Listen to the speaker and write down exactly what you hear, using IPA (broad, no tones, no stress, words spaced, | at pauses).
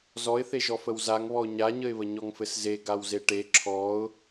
zɔɪ̯θeʒɔfəw zaŋβɔʊ̯ ɲaɲəɪ̯βə ɲɔŋfɘsze ɡawzeʈe ǁʰɔʊ̯